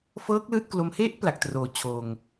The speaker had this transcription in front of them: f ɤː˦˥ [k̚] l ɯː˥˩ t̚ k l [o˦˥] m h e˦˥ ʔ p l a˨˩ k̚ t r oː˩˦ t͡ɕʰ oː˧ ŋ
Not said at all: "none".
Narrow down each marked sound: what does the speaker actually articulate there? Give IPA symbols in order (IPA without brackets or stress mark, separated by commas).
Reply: k̚, o˦˥